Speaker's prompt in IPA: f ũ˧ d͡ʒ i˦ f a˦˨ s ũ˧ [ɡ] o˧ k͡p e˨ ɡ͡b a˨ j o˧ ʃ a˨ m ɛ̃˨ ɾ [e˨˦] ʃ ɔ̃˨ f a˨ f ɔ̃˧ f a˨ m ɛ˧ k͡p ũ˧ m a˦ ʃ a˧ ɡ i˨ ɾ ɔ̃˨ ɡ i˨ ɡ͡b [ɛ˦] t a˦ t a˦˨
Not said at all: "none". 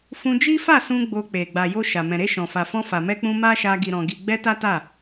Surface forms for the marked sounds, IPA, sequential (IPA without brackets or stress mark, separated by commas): ɡ͡b, e˧, ɛ˧